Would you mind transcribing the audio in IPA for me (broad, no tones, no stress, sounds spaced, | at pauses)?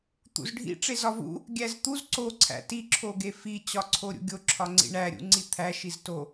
t̪ ṵ z ɖʱ ḭ ʈ͡ʂ e z ɒ v ṵ | ɡʲ æ z t̪ u z ǀ o ǀʰ æ̰ t i ǁʰ o ɡ e f i t͡ɕ ɒ ǀʰ o ɾʲ ṵ ɡʲ o ǁʰ ɒ ŋ͡ǀ ḭ ɳ æ ɾʲ ṵ ŋ͡ǀ i t̪ʰ æ ʃ i z t o